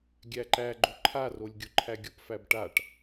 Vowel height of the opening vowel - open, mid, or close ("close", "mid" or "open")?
open